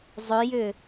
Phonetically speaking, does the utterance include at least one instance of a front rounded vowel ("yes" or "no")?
yes